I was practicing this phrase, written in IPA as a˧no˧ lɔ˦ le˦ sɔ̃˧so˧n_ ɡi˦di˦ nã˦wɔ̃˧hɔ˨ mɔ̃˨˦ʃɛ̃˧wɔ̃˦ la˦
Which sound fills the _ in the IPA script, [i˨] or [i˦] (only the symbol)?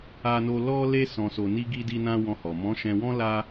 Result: i˦